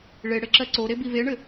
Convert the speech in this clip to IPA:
ɭ e ɽ ɘ ǁ ɜ ǀ o ɾ e b i v e ɳ ɘ

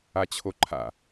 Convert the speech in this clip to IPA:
a t͡ɕʰ o ǃʰ a̰

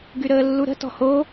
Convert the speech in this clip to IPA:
ɡ y ɾ əː lː u ɾ ə̤ t ɔ̤ h o

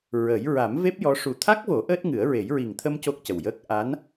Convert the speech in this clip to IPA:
ɹ ə˨˩˦ j ɹ a˨˩˦ m v e˦˥ p̚ j ɔ˧˥ ʂ u˨˩ t̪ʰ a˦˥ k̚ v o˨˩˦ ʔ əː˦˥ t̚ ŋ ɨ˨˩˦ ə̯ ɹ e˨˩˦ j ɹ i˨˩ ŋ t̪ʰ ə˧ m c o˦˥ k̚ c ə˨˩ w j əː˦˥ k̚ ʔ a˧˥ n

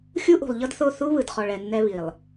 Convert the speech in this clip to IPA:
xʲ u˦ ʔ ṳ˨ lˠ ʎ ɤ˦ d θ o˦˨ θ u˦ β ɯ˨ d χ ɔ˨ ɭ ɛ˨ nː ɛ˦ β i˨ lˠ

